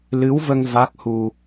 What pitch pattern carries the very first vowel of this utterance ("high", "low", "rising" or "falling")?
rising